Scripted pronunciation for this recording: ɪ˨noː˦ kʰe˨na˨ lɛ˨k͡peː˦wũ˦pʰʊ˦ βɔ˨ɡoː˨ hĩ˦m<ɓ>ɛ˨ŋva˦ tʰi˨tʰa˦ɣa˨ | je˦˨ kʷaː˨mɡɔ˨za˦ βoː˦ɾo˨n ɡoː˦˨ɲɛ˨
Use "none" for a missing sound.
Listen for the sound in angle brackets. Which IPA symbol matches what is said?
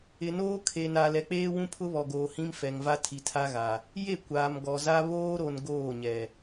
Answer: f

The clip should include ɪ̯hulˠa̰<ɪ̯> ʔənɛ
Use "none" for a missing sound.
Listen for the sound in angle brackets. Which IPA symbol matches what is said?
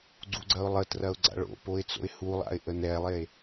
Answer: ɪ̯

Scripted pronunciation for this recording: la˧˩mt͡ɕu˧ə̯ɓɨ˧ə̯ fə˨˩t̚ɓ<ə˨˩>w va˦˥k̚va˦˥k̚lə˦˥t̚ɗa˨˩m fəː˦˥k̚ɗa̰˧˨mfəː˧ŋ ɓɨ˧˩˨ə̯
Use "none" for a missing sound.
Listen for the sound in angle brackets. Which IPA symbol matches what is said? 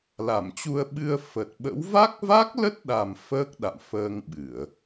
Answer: ə̰˧˥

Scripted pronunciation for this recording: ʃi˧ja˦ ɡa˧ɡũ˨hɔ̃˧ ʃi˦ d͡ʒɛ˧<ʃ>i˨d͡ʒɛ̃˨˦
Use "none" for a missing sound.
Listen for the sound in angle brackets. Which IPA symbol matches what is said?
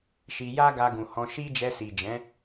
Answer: s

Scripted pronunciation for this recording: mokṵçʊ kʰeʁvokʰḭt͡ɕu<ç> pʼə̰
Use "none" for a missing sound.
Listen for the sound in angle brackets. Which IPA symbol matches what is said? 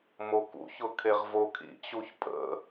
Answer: ç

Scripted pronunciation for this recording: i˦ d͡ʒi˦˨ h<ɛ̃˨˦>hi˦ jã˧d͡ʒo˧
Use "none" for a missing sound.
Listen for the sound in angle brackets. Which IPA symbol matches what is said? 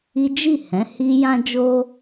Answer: ɛ̃˨˦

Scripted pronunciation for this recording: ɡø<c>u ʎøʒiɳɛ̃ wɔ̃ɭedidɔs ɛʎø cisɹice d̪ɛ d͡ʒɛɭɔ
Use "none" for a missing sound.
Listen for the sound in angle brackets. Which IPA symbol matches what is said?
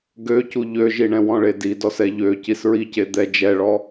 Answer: c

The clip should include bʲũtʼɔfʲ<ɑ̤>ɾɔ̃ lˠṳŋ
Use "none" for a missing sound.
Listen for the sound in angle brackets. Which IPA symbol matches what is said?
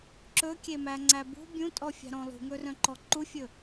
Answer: ɑ̤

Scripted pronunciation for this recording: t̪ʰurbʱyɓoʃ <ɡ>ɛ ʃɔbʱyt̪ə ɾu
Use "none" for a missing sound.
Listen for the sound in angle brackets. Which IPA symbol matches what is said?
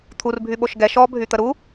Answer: ɡ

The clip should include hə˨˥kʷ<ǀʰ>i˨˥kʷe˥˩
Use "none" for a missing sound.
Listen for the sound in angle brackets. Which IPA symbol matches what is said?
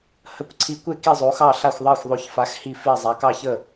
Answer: ǀʰ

